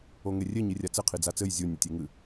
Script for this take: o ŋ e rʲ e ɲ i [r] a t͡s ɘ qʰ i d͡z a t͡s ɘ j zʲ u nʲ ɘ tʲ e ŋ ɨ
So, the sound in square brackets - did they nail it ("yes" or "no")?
no